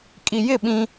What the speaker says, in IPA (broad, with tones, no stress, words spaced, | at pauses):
kʼi˨jɪ˦˨ ɓĩ˦